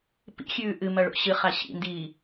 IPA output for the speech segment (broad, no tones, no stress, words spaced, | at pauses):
pḭxʲʉː ʔɨmɐɭo̰ ɕɨχa ɕḭndiː